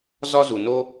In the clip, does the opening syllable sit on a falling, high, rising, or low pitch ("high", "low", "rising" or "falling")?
high